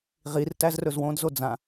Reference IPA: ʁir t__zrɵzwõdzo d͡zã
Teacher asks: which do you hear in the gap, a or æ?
æ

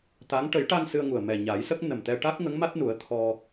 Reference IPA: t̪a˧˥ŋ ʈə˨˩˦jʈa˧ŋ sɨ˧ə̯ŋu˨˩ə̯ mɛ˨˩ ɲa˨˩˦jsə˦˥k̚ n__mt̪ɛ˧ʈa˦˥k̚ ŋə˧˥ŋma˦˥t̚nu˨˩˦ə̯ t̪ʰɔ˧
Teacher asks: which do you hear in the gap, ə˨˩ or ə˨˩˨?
ə˨˩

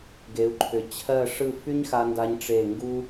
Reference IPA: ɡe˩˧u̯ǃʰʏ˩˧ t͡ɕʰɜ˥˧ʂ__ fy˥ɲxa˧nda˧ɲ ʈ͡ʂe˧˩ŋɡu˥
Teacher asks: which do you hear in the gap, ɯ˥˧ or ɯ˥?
ɯ˥˧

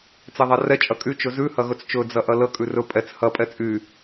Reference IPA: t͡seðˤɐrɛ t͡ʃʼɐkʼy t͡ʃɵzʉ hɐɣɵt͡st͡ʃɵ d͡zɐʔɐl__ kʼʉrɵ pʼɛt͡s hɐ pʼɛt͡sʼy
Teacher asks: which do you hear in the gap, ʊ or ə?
ə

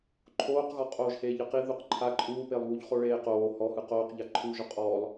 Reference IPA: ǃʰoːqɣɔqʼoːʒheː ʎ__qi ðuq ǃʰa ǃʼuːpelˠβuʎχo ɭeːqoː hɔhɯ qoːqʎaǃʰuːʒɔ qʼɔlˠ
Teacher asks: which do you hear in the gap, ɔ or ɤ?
ɤ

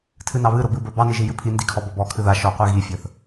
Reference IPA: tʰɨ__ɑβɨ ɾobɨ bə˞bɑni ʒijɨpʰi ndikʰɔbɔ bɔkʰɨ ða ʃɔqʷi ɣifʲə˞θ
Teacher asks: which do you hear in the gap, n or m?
n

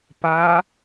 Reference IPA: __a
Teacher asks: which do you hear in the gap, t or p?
p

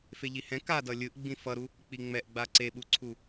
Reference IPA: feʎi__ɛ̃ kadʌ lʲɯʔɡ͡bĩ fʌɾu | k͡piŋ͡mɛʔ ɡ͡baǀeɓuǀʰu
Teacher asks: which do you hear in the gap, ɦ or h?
h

